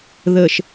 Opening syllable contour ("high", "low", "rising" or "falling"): low